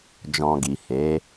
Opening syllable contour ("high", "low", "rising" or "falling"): low